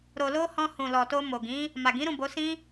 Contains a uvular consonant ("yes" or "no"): no